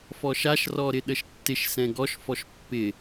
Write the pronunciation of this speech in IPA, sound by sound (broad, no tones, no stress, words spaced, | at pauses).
fɔʃaʃrɔ ɾɪɗəʃtːɪʃsɛ̃ ɡɔʃfɔʃ pːɪ